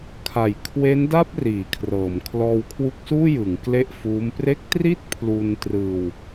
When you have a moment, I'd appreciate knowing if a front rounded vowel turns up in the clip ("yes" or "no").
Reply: no